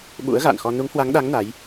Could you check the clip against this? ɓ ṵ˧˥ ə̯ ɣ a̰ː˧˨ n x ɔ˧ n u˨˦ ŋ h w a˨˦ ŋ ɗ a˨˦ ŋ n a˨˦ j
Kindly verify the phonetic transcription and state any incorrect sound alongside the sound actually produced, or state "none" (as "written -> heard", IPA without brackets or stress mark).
none